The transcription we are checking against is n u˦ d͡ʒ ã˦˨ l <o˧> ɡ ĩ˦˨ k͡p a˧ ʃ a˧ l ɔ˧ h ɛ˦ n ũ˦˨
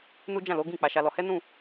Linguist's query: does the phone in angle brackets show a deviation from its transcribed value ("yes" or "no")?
yes